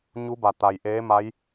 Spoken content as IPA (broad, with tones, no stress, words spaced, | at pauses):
ɲu˧˥ba˩ t̪a˩jʔeː˧˥ ma˧˥j